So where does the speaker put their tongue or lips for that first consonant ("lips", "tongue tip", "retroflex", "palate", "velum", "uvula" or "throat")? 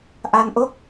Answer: throat